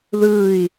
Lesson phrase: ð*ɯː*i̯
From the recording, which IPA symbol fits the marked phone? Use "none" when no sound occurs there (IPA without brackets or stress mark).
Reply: ɯː